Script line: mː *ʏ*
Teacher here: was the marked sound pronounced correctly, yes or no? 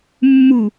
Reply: no